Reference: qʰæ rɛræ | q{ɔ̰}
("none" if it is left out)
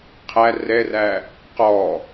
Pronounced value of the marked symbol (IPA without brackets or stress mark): ɔ